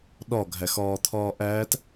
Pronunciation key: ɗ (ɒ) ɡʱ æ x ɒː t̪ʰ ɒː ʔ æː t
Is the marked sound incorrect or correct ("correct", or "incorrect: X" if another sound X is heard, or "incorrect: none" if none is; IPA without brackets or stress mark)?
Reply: correct